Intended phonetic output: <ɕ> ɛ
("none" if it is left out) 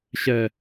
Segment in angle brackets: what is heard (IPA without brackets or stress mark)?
ɕ